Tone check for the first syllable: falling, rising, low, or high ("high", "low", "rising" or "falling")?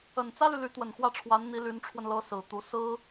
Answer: low